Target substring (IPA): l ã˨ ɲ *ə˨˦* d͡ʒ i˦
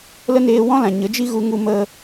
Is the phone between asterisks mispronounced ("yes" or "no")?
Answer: no